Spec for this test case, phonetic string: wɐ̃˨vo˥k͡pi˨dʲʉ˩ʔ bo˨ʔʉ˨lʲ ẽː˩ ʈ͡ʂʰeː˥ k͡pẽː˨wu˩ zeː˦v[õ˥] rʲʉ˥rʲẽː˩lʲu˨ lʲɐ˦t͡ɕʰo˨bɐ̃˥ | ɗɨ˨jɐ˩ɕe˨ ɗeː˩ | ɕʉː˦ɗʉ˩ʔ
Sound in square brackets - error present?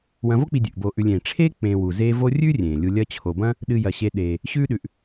yes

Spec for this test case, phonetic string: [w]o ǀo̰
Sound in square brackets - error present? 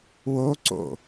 no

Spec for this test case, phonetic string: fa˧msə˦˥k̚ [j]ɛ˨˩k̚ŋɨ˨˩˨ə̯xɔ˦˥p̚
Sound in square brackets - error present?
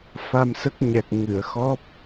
yes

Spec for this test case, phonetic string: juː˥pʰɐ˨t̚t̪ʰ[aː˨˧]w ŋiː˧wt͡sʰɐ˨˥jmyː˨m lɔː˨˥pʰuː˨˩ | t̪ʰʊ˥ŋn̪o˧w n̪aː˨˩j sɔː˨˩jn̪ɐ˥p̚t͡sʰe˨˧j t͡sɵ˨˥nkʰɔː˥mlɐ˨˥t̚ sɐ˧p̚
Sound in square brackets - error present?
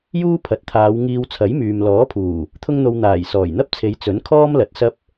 no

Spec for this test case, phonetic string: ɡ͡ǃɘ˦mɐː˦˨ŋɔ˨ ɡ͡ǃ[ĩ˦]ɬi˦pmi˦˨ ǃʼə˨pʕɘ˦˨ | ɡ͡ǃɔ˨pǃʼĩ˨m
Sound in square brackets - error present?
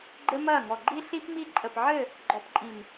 yes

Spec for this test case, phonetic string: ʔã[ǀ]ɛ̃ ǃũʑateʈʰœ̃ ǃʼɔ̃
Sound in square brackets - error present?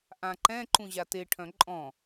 yes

